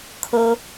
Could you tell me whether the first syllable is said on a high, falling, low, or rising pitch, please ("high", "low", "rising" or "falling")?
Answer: low